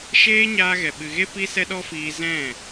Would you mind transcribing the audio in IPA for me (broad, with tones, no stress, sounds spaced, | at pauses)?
ʃ eː˦ ɲ aː˧ ɣ ɛ˨ ɓ ɨ˨ ɣ e˦ p i˦ s ɛ˦ ɗ ɔ˦ f iː˧ z ɛ̃˦˨